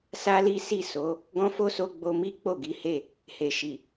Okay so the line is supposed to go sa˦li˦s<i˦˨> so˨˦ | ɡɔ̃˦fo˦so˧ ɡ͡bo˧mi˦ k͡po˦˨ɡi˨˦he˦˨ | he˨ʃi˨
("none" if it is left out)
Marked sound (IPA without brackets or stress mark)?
i˦˨